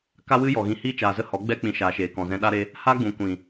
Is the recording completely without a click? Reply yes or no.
yes